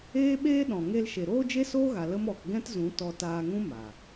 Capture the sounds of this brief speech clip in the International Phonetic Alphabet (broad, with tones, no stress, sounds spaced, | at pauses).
eː˦ ɓ eː˦ ɗ ɔ̃˨ ŋ e˧ l ʃ e˨ ɾ oː˦ d͡ʒ e˦ s oː˦ ɣ a˨ l ə˦ m ɔ˨ k ɡ ɛ̃˦ t z ũ˨˦ t ɔ˧ t aː˧ ŋ ũ˦ m a˨